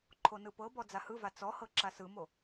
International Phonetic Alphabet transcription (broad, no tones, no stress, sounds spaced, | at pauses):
ǃʰ o n ɯ p ɤ b ɔ d͡z a h ɯ v a t͡s ɔ h ɤ ǁ a s ɯ m o